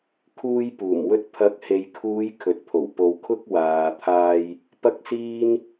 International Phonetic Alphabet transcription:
kʰuː˧jpuː˨˩mwɵ˧t̚ pʰɐ˨˥k̚he˨jkʰuː˨˧j kʰɵ˨t̚pʰo˨˩w po˨wkʰʊ˧k̚ waː˨t̪ʰaː˧j | pɐ˥k̚siː˥n

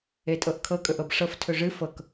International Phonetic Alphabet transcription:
etʼɤʔkʰɤ kʼɵʔɤbʂɤf tʰɵʐɨ fɤk

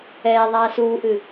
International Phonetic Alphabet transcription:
ɛːðˤaː suːʔɨ

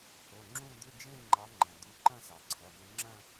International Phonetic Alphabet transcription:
θo˩˧˩ ŋ͡ǁũ˥˧ d̪ʏ˧˥˧d͡ʒẽ˥˧ ŋ͡ǃɑ˨˦ŋ͡ǃɐ̃˩ d̪u˨˦ǃɐ̃˥˧sɑ˩ǀʰɐ˩˧˩ mʏ˨˦ŋ͡ǁɐ̃˥˧

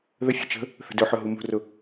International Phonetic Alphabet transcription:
ðəfʲo̤ t͡ʃə̤ | θə̤dɵħɵ ɦumṳrʊ

